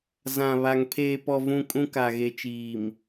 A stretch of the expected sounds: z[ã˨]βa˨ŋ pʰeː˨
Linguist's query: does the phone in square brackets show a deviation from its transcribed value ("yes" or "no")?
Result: no